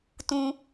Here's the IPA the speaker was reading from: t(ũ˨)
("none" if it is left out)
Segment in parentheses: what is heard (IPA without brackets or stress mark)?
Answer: ũ˨